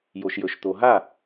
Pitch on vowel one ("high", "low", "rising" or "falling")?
low